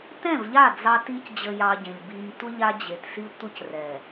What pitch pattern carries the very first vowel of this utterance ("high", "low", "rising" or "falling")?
falling